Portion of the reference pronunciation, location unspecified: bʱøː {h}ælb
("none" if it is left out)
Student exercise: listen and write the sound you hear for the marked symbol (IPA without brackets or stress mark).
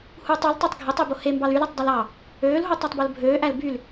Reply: ʔ